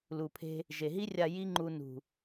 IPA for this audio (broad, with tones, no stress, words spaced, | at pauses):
lu˨pʰe̤˧ | ʒe˨ɦi˦rʲa˧ ji˦ŋ͡ǃu˧ nṳ˨